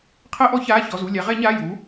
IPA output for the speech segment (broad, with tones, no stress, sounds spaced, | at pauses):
qʰ ɜ˧˩˧ ʔ ɔ˧˩˧ ç aː˩˧˩ ç ɔ˩˧˩ z u˩˧˩ lʲ a˩˧ ʁ ɛ˧˩˧ ɲ aː˩˧˩ j u˩˧